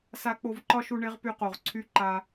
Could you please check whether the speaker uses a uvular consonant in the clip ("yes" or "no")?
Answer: yes